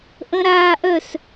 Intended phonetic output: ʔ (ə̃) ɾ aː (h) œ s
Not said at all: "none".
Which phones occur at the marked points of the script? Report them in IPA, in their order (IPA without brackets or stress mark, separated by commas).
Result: ə̃, ʔ